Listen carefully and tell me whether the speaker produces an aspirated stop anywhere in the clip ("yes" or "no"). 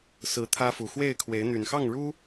yes